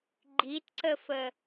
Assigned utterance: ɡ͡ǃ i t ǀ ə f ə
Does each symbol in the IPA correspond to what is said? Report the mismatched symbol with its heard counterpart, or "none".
none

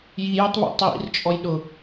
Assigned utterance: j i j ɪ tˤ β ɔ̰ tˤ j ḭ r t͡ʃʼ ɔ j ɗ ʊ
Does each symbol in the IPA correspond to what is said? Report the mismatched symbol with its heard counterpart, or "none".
none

